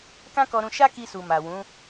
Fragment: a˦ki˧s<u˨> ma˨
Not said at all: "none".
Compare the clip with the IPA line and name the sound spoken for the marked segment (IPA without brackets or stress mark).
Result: u˨